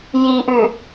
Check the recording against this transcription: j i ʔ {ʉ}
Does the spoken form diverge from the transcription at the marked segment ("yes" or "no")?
no